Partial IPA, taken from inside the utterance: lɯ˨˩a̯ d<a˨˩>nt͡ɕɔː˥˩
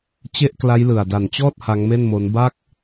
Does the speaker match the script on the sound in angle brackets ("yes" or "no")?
yes